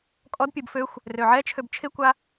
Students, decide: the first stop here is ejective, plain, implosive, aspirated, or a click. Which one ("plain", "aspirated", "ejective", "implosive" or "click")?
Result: ejective